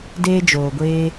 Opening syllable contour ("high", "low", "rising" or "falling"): high